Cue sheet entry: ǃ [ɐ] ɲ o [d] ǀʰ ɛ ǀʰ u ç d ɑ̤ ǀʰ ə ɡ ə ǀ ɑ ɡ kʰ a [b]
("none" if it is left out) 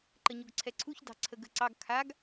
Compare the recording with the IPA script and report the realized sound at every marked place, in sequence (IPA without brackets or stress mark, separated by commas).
ə, ɡ, ɡ